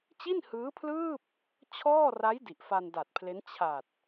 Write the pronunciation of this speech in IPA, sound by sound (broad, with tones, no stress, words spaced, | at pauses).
t͡ɕi˥˩nhɯː˦˥pʰlɯː˥˩p̚ | t͡ɕʰɔː˥˩ra˦˥j di˨˩ʔfa˧nda˨˩t̚pʰle˦˥n t͡ɕʰa˨˩t̚